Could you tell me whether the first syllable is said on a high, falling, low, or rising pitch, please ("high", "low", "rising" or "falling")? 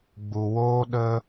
low